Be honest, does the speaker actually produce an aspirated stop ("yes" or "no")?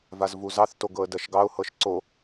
no